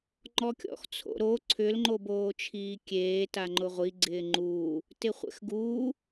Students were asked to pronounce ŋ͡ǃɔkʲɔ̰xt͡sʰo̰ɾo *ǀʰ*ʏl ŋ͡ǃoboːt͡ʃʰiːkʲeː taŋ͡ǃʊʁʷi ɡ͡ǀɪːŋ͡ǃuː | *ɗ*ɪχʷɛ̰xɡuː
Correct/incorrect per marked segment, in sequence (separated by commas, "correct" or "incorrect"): correct, incorrect